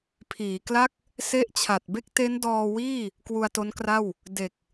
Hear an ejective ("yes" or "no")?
no